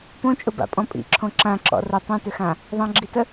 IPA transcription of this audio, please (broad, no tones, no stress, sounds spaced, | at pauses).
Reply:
p õ t͡ʃʼ ʊ b a̰ pʼ ɔ̃ pʼ ḭ ǁʰ õ ǁ ã ǁ ɔ̰ r ə tˤ õ t ʏ x ã | ðˤ ã ɡ͡ǁ i t ə